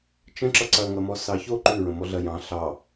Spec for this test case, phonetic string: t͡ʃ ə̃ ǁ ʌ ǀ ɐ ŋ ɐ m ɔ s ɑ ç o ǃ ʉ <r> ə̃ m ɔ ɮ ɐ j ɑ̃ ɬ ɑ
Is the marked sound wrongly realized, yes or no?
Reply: yes